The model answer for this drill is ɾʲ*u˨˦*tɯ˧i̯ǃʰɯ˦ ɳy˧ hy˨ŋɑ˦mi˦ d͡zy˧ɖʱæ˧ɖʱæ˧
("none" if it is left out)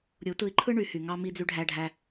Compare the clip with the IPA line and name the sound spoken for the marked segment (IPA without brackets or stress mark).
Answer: u˨˦